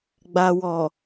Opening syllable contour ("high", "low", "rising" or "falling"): low